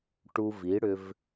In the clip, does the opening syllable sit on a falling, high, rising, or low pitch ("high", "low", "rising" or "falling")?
high